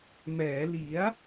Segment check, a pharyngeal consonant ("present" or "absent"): absent